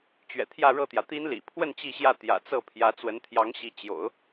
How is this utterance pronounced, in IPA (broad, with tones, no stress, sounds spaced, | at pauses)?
t͡ɕ ɥ ɛ̰˨˩ t̪ʰ j ä˥˧ ɻ ɤ˥˩ t̪ j ä˩ t̪ i˥ n l ḭ˨˩ pʰ w ə˥˧ n t͡ɕ i˥˧ ɕ j ä˥˩ t̪ j ä̰˨˩ t͡s ɤ˥˩ pʰ j ä˧˥ t͡s w ə˧˥ n t̪ʰ j ɑ˧˥ ŋ ɕ i˧˥ t͡ɕ j o̰˨˩˦ ʊ̯